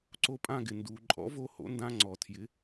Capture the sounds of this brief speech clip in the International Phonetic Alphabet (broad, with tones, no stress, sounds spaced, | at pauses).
ǀ o˦˨ pʼ ã˦˨ ɡ ɪ˩ n d uː˩ ǃʼ ɔ̰˩˥ v o˦˨ h o̰˩˥ n d ã˧˥˧ ŋ͡ǀ ɔ˩ tʰ j ɪ˩˥